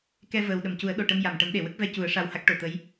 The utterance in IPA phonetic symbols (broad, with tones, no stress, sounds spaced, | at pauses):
k ɛ˧ v əː˨˩ w ɗ ə˨˩˨ m c u˨˩˦ ə̯ ɗ o˨˩ ʈ ə˧ m j a˨˩˨ m ʈ ə˨˩˦ m ɗ e˨˩˨ w ə˦˥ k̚ v ɛ˧ c u˨˩˦ ə̯ ʂ a˧ w h a˦˥ k̚ ʈ o˨˩˨ t̪ ə˧˥ j